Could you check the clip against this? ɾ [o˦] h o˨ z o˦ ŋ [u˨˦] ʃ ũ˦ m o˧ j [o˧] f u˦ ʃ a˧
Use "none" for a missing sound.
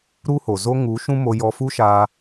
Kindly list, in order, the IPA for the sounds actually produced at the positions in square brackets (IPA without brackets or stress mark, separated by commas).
u˦, u˨˦, ɔ˧